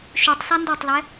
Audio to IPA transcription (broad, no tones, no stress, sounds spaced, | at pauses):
ʃ y tˤ s a n d o tˤ l ɛ